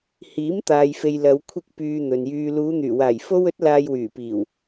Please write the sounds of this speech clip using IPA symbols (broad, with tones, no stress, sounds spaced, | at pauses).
h iː˨˥ m t̪ aː˨ j f e˨ j l ɐ˨˧ w kʷʰ ɪ˧ k̚ p yː˨ n̪ ɵ˨ n j yː˧ l uː˨˧ n̪ yː˨˩ w aː˨˩ j f o˧ w ɵ˨˥ t̚ l aː˨ j w yː˨˩ p iː˨˩ w